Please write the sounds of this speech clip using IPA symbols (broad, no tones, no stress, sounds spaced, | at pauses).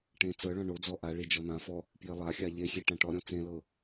ʈ ẽ t͡s ɤ ɭ ɔ̃ ɳ o d͡z ɔ ʔ a ɭ i d͡ʒ ɔ n̪ ã f ɔ | p j e lˠ a xʲ a ʎ e xʲ e ʈ ã ʈ ɔ ɾʲ ɔ̃ t͡s ẽ l ɤ